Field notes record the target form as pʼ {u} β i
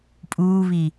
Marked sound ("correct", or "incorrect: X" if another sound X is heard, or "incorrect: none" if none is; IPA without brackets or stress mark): incorrect: uː